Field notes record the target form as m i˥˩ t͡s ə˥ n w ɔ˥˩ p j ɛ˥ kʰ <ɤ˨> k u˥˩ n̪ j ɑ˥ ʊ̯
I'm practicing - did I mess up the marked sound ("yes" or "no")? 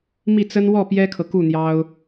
no